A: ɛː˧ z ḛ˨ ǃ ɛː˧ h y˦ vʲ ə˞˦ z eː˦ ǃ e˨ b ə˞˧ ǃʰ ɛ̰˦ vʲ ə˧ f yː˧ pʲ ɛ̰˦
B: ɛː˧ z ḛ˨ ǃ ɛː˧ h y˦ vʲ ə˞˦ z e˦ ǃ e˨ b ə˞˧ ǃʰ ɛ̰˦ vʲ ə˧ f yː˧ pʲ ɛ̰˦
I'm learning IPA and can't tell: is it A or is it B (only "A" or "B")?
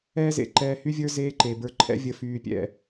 A